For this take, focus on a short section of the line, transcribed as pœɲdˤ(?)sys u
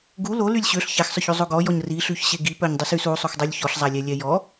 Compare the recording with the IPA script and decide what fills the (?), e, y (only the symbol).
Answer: y